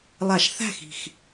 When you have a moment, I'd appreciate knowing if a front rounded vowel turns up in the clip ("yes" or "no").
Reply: no